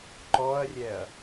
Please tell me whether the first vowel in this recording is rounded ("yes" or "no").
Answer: yes